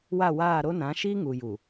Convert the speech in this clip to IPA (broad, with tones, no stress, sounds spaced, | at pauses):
w a˦˨ w aː˦˨ ɾ o˦ n ã˨˦ ʃ i˦ ŋ u˨ j u˨